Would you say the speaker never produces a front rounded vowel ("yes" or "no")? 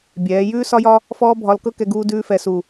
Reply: yes